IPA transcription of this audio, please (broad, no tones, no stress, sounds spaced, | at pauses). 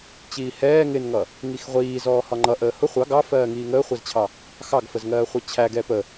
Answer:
t͡ɕ iː h ɛː ŋ ɪ n ŋ ʌ | ŋ i x ʁʷ iː z ɔː h ɒ ŋ͡ǃ ʌ ʔ əː h ʊ χʷ ɑ ɡ ɑ f ɜː ŋ iː ŋ əː χʷ ɛ z t͡ɕʰ ɑ | x ɑ ɡ f ə z ŋ ɜː χʷ ə t͡ɕʰ æ ɡ ɛ p ə